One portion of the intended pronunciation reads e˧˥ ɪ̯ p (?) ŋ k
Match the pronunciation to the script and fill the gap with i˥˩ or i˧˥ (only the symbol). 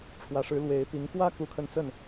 i˧˥